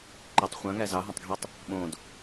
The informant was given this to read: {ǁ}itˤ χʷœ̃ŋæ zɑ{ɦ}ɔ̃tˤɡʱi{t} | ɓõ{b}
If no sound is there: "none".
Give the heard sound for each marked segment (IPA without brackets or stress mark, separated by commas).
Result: ǃ, ɦ, tˤ, d